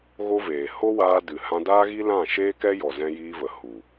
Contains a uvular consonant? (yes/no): no